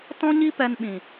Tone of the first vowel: high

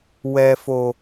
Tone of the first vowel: low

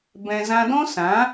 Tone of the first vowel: low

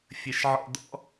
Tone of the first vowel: low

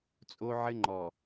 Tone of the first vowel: high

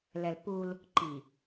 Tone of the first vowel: low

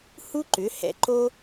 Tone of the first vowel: high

